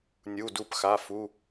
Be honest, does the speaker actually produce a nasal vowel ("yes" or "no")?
no